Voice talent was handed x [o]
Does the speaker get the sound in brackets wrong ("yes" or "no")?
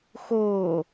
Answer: yes